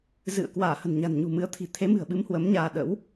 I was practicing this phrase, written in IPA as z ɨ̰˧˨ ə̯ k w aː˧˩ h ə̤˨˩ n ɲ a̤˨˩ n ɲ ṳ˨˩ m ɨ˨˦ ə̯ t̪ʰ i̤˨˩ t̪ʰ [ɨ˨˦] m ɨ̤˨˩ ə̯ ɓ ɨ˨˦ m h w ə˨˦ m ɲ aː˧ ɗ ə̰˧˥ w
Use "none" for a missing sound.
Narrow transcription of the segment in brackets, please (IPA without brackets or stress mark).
e˨˦